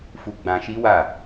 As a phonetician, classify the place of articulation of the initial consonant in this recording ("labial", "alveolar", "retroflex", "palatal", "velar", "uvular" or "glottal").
labial